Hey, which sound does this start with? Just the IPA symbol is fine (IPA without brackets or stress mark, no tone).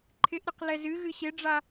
ǃʰ